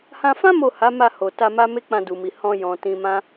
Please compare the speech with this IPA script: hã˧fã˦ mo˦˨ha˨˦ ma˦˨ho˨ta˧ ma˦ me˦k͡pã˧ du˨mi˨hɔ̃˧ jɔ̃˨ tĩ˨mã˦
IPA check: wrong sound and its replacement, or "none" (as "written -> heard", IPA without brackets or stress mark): ĩ˨ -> ĩ˧